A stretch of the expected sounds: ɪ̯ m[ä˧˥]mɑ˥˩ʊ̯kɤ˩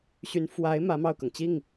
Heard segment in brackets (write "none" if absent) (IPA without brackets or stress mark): ä˧˥